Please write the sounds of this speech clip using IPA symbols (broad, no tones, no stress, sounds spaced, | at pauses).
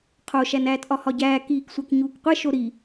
qʰ o ʃ æ n æː t ʔ ɒ h ɒ ɟ æː k iː k sʷ æ k ɲ uː k qʷ e ʃ o ɾ i